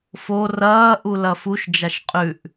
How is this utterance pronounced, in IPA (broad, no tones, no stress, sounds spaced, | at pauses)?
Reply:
f o r ɐː ʔ u l ɐ f u ʃ d͡ʒ a ʃ qʼ ʉ ʔ